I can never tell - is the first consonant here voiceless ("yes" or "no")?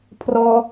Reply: yes